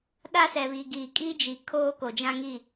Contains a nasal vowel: yes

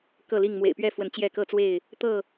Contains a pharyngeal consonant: no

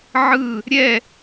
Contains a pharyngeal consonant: yes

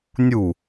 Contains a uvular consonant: no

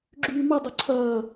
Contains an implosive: no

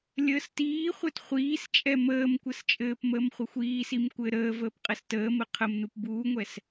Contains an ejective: yes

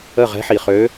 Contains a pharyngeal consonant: yes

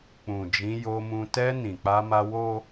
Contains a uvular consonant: no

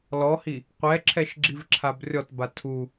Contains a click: yes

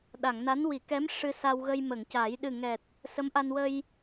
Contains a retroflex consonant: yes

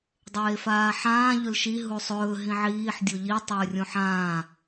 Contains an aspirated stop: no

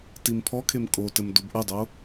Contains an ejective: yes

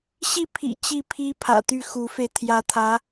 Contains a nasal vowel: no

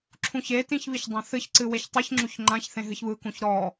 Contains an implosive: no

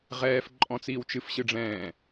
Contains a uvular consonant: yes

